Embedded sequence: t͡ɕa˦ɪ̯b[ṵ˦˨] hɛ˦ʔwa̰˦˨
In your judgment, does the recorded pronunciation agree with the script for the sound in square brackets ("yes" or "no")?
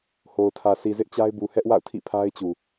no